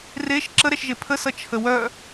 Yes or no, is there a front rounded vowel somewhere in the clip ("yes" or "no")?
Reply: yes